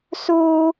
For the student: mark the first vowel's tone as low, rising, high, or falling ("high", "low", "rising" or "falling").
high